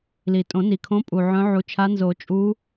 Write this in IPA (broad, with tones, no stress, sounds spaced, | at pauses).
l i˩ tʼ õ˨˩˦ n i˩ kʰ õ˧˥ pʼ u˩ ʕ œ̃˧˥ ʕ u˩˥ t͡ʃʰ a˧˥ n z o˨˩˦ t͡ʃʼ u˧˥